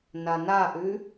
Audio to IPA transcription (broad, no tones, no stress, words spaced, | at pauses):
nanaʔʉ